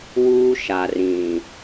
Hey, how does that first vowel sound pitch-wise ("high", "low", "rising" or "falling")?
high